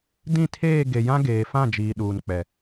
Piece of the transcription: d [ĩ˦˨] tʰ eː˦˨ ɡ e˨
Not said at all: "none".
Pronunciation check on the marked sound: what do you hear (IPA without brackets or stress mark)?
ĩ˦˨